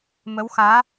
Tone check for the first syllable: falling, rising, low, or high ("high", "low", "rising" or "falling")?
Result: rising